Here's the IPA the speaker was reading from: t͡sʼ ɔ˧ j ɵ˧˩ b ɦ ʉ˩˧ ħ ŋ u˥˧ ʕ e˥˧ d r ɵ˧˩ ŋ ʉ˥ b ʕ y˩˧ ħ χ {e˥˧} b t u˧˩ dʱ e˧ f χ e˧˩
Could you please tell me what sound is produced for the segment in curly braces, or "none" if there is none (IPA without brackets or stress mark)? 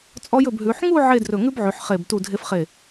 e˧˩